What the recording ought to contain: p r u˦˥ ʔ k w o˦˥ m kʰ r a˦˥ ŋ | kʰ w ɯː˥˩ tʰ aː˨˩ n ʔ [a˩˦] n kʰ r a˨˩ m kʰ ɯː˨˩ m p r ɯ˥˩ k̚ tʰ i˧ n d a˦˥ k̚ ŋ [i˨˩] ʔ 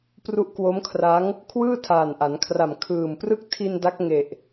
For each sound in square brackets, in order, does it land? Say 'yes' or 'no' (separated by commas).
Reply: yes, no